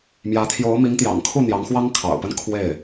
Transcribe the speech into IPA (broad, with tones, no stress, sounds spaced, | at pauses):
m j ä˧˥ t̪ʰ j o˧˥ ʊ̯ m i˧˥ ŋ t̪ j ɑ̰˨˩ ŋ kʰ u˥˩ n̪ j ɑ˧˥ ŋ x w ɑ˥ ŋ kʰ ɑ̰˨˩ ʊ̯ p ə˥˧ n kʰ w e˥˩ ɪ̯